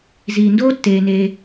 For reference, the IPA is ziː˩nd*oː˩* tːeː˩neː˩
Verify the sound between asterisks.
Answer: incorrect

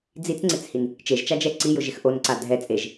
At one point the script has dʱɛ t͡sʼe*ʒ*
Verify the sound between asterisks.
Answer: correct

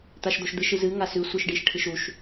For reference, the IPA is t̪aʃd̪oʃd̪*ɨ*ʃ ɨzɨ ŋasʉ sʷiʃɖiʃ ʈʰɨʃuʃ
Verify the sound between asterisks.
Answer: correct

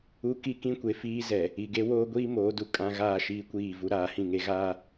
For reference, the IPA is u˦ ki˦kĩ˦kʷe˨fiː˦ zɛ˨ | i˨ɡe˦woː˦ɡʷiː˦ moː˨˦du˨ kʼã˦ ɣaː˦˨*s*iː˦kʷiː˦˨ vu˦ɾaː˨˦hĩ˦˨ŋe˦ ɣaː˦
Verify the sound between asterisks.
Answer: incorrect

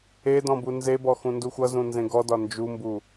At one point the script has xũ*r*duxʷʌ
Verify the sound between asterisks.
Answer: incorrect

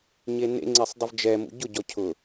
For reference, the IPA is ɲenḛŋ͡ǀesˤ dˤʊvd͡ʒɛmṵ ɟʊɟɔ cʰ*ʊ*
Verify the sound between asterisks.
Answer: correct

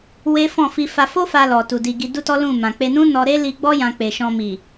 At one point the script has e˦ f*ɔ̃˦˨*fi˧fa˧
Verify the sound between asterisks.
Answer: correct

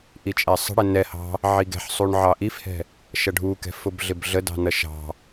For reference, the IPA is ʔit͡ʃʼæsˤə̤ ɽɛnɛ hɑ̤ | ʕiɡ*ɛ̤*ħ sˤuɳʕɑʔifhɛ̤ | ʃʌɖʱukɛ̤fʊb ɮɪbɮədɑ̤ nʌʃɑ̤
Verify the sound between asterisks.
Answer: correct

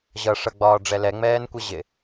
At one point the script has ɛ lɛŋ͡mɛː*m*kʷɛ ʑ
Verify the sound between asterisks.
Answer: incorrect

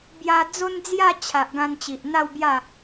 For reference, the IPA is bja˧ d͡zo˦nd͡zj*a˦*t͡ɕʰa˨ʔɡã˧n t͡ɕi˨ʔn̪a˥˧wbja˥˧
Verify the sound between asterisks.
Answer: incorrect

